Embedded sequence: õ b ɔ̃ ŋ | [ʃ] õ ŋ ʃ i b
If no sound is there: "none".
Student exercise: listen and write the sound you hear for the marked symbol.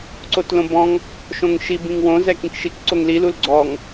ʃ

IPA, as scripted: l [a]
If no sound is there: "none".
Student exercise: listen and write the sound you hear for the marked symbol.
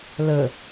ə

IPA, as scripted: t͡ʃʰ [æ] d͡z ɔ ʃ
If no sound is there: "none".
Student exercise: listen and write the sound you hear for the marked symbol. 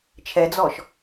ɛ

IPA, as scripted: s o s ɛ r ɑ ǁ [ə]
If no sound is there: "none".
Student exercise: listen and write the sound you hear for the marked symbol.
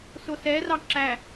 æ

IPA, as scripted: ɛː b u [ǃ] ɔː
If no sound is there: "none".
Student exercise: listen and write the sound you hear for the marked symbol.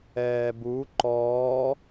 ǃ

